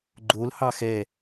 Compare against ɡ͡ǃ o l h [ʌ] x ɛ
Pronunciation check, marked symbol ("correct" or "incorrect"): incorrect